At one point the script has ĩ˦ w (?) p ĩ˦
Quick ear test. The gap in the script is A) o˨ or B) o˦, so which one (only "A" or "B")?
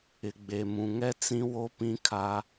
B